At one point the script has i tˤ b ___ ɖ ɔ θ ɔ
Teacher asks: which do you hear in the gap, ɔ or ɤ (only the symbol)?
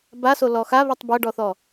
ɤ